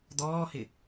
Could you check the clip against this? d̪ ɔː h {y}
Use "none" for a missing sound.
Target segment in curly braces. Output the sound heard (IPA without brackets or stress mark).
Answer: ɪ